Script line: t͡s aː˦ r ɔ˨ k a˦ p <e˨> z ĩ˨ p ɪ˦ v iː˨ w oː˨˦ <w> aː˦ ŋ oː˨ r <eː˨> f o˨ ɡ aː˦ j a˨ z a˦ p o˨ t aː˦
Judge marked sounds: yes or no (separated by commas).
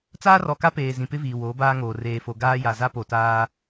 no, no, yes